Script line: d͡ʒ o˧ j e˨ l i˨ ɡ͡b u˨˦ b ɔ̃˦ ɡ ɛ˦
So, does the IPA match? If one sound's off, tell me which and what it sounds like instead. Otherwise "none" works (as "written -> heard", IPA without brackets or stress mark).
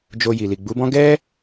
e˨ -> i˨